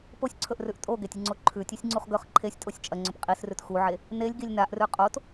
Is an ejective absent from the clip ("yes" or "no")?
no